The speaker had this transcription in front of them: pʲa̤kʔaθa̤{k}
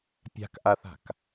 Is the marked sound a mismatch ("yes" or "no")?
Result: no